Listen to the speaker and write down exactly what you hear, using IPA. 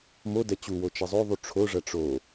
m o d ɛ t͡ɕ u w o t͡ʃ ɛ zˤ o ðˤ u ʈ͡ʂʰ o ʐ ɐ ʈ͡ʂ o

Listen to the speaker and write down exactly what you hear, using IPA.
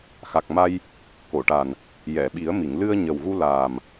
x a˨˩ k̚ m a˧ j | k o˨˩˨ ʈ a˨˩ n | j ɛ˨˩˨ ɓ i˨˩˦ ə̯ m i˨˩˨ ŋ l ɨ˧ ə̯ ɲ ə˨˩ w ɣ u˧ l aː˨˩ m

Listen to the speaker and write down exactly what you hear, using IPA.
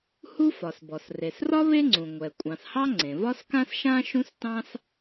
h u˥ f ɒ˩ s b ɔ˩ s r e˩ s r ɒ˥ β e˥ ŋ͡ǀ ũ˩ ŋʷ ɛ˩ kʷʼ ɑ̃˩ s h ɑ˥ ŋ͡ǀ ẽ˩ v ɒ˥ s k ã˥ s ʃ ã˥ ʃ ũ˥ s t ɑ̃˥ s

